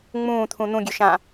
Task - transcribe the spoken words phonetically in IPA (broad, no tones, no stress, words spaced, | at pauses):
ŋ͡mũːt̪ʰũ n̪ũɡʲøʃã